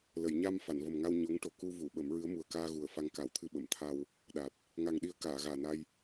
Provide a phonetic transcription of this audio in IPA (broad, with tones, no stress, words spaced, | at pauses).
lə˨˩˨jɲa˧m fa˨˩˨nvə˨˩mŋa˧w ɲo˧˥ŋʈo˨˩ ku˧vu˨˩˨ ɓə˨˩˦mɹɨ˧˥ə̯ mu˨˩ə̯kaː˧ɣu˨˩ə̯ fa˧ŋka˨˩˦wt̪ʰɨ˧ ɓə˨˩˨mt̪ʰa˧w | ɗa˨˩t̚ | ŋa˨˩ŋɗi˨˩˦ə̯ kaː˨˩˨ɣaː˨˩na˧j